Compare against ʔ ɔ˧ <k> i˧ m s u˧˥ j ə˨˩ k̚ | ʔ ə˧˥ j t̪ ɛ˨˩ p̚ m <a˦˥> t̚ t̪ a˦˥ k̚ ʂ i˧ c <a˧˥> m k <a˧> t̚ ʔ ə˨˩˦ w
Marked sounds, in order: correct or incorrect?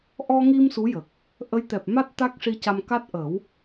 incorrect, correct, incorrect, incorrect

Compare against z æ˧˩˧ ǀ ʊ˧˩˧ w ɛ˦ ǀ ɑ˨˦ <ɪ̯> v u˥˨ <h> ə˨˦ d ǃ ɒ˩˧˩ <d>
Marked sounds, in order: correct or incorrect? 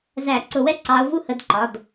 incorrect, correct, correct

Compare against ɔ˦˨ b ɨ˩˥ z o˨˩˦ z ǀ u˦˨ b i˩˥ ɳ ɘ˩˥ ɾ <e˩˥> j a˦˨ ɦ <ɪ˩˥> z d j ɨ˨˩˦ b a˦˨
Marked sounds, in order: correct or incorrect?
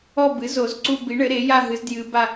correct, incorrect

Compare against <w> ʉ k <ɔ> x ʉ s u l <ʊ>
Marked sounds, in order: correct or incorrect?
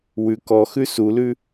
correct, correct, incorrect

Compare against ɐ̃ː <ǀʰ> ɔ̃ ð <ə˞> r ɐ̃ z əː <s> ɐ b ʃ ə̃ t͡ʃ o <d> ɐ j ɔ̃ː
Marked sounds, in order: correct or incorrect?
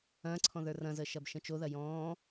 correct, correct, incorrect, incorrect

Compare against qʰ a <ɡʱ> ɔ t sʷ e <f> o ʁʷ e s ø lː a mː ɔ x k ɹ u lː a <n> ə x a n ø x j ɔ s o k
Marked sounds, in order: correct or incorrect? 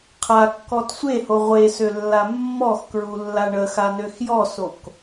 incorrect, incorrect, incorrect

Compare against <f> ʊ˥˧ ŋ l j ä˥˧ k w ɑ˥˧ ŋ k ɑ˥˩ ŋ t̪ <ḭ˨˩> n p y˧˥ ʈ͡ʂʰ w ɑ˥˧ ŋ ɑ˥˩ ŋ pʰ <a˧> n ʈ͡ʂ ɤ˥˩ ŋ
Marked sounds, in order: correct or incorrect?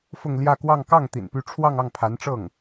correct, correct, incorrect

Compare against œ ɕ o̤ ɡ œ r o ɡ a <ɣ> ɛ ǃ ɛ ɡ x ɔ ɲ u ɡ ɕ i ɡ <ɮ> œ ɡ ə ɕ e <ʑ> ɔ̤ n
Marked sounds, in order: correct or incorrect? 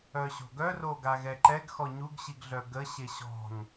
correct, correct, incorrect

